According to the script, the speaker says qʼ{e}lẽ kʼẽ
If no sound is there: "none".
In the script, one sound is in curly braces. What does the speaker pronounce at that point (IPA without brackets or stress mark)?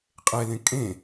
e